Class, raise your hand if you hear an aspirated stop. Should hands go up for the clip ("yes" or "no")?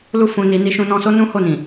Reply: no